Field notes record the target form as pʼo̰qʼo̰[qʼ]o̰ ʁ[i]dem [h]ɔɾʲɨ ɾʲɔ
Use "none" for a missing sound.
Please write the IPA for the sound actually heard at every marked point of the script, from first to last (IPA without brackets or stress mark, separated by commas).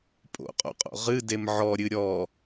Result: qʼ, ɨ, ʕ